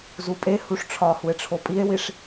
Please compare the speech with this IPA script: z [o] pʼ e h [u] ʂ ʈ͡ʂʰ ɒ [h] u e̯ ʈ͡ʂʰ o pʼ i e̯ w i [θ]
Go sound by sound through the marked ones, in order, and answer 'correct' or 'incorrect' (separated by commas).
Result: incorrect, correct, correct, incorrect